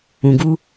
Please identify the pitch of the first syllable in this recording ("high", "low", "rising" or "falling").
low